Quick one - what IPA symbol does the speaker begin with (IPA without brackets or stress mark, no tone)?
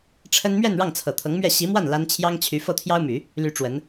ʈ͡ʂʰ